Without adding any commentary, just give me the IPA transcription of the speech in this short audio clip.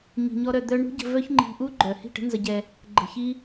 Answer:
ɲi̤˧ɲɔ˦ɾœ˧ d̪œ˦ ɳṳ˦ɟə̤˧ vœ˦çŋ͡ǃi̤˧ʔu˦ ɡ͡ǃœ˨ hi̤˦˨ʈə̤˦nzə˧ɟɛ˧ | ɡ͡ǃə̤˧çi˦

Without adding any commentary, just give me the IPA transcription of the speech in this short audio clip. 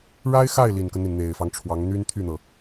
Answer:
ɻa˥ɪ̯xa˥˩ɪ̯ li˨˩nkə˦nn̪i˩n n̪e˨˩ɪ̯fɑ˦ŋʈ͡ʂʰwɑ˧˥ŋ n̪y˥nt̪ʰy˥˩n̪ɤ˩

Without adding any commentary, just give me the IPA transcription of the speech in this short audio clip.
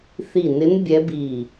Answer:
θi˧˩nɪ˧˥n bʲɛ˧˥bi˧˩

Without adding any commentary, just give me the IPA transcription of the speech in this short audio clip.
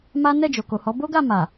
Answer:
ma˦ nɛ˦˨d͡ʒo˨ko˨hɔ˨˦ bo˦ɡa˦˨ ma˨

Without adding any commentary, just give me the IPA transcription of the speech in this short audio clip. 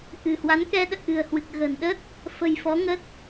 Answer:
ʔɨ̤˨˩hwa˨˦n kɛ˧ɗə̰ː˧˨ ʔɨ̤˨˩ə̯hwɨ˨˩k̚ɣə̤ː˨˩n ɗə˦˥t̚ | fə̤˨˩jfɔ˨˦ŋə˦˥t̚

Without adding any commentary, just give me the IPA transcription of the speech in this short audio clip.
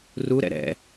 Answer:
ruɾɛ̰ ɾɛ̰

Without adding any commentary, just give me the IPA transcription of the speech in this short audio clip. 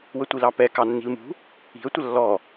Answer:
wətʷilɑpɛ kɑnːi̤lmṳ | i̤ə̯ tʷəlːɔ

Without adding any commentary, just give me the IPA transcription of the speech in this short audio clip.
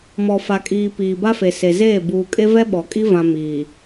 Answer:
mɔ˨fa˨kʼiː˨ piː˨ba˦fe˨ se˨zeː˦˨ buː˨kʼe˦ vɛ˦ɓɔ˨kʼi˦ vã˦ miː˨

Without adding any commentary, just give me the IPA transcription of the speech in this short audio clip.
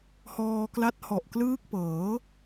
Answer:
hɔː˧kla˦˥t̚hɔ˨˩ʔklɯː˦˥k̚ pɤː˩˦

